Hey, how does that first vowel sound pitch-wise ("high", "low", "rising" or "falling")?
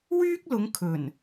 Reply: high